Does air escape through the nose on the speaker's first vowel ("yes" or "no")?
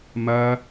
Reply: no